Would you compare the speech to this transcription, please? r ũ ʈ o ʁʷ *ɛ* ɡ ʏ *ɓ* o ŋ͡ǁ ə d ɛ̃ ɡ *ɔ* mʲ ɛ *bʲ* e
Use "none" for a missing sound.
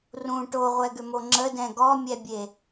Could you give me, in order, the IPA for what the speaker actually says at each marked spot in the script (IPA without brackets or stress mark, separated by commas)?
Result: ɛ, m, ɔ, bʲ